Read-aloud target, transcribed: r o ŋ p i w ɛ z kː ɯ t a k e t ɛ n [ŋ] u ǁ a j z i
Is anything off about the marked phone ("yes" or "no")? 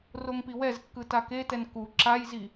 yes